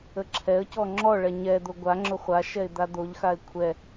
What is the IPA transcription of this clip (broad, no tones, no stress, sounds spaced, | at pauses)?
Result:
ə ǁʰ ɛ ə̯ c ɔ ŋ͡ǁ ɔ ɭ ɛ ɲ ɛ d̪ o ɡʷ a ŋ͡ǁ ʊ χʷ a ʃ ɛ ɪ̯ d̪ a d̪ o ʎ x a ɪ̯ kʷʰ ɛ